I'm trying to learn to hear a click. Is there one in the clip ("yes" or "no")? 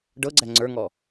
yes